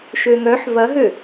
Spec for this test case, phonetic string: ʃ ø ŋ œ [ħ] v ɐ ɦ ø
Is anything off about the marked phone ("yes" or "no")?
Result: no